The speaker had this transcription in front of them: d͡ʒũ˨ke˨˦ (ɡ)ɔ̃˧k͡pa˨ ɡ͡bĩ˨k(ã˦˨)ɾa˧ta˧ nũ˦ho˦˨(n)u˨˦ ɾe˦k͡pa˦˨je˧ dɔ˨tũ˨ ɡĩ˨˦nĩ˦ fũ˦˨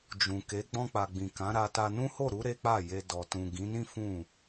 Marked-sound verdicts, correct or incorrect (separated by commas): incorrect, incorrect, incorrect